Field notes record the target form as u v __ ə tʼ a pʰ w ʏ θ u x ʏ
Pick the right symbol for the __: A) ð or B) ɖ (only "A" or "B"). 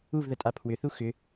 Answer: A